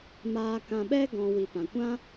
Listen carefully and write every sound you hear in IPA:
m aː˧ k ã˧ ɓ ɛ˦ ɡ ɔ̃˧ w i˨ p ã˨ kʷ ã˦

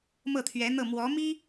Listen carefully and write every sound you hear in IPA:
m ɤ˥˩ t̪ʰ ɥ ɛ˧˥ n̪ ɤ˥˩ m w ɔ˧˥ m i˥

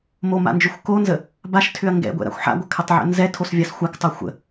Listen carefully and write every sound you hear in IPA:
m o m a̰ n d͡ʒ ʏ xʷ k o n z ə | b a ʃ tʰ ʏ ɐ̯ ŋ ɡ ɛ̰ ɡʷ ɛ̰ ɾ a̰ xʷ ħ a̰ ɡʷ ə kʰ ə tˤ ʕ ɛ̰ n z ɛ tʰ o s vʲ a s xʷ a k tˤ o xʷ ə̰

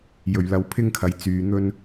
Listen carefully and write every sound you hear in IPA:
j ɵ˨˩ ɥ l ɐ˨˧ w pʰ ɪ˥ ŋ kʰ ɐ˨˥ j t͡s yː˧ n̪ ɵ˥ n

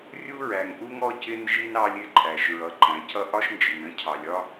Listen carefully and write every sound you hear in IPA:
rʲ u˦ ɹ æ˨ ŋ ʔ u˦ ŋ ɔ˦ c ɪ˦ n ʒ i˦ n ɑ˦ lʲ ɪ˦ ǃʼ æ˨ ʃ ɹ ʌ˨ ǃ æ̃˨ c ʌ˦ ʔ ɒ˦ ʃ n d͡ʒ i˨ n ə̃˦ cʰ ɑ˨ lʲ ɒ˦

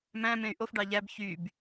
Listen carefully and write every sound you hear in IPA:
m æ̃ m ẽ y̯ ʔ o f ɖ ɑ ʎ æ b ç y b

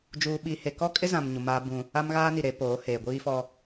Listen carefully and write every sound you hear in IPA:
d͡ʒ uː˦ ɓ i˦ h e˦ k ɔ˦ kʼ ɪ˦ z ã˨ m ɲ u˨ m aː˦ b ũ˦ | a˦ m ɣ aː˦ n i˨ ɾ e˨˦ p oː˨˦ h eː˨ ɡʷ iː˦ f ɔ˦

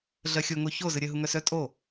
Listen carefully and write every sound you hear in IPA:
ɮ ɜ xʲ o ŋ o ç o z ɨ ɾʲ ɜ ɦ u ŋ œ s œ tʼ o

